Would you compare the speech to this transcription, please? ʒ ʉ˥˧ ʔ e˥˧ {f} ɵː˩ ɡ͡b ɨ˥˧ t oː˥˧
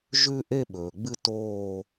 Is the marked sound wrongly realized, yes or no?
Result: yes